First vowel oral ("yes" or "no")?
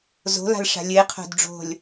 yes